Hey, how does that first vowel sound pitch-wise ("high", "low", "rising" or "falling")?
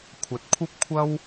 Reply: rising